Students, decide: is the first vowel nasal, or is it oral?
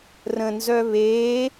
nasal